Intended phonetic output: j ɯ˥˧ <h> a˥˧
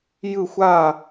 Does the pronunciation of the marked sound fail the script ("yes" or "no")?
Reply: yes